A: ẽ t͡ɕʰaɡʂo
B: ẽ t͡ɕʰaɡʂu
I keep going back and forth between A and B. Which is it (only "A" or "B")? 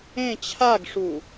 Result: B